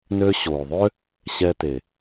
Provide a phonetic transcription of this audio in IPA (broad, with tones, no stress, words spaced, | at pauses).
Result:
nø˧ɕo˨ðˤø˦ | ɕɛ˧te˨